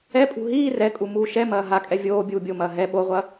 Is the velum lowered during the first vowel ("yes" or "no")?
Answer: no